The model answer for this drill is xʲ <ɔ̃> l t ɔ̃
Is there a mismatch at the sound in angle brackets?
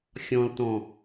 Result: no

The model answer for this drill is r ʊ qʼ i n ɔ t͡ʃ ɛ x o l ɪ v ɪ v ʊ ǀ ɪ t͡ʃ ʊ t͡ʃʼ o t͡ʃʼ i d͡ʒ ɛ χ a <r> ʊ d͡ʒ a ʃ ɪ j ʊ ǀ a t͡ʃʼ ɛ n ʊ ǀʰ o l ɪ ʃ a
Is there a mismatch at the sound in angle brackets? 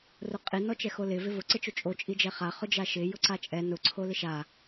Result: yes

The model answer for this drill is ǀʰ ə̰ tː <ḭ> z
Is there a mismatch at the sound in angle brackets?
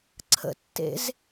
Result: yes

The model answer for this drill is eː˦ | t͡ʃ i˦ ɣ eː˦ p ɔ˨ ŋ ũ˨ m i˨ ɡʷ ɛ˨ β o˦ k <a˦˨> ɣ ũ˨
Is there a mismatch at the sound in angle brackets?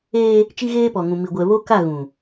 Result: no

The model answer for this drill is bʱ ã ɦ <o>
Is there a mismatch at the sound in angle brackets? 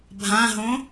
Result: yes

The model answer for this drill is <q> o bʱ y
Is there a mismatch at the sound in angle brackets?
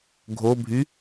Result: yes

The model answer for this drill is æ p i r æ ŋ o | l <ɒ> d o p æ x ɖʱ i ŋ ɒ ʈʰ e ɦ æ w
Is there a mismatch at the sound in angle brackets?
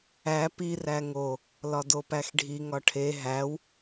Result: no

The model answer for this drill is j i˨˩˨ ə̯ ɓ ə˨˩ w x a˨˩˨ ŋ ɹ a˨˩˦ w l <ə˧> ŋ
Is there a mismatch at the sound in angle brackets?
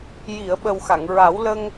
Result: no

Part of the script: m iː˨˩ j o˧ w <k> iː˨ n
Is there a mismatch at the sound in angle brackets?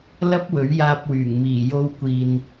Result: yes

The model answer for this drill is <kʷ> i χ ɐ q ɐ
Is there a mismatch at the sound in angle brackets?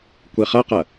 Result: no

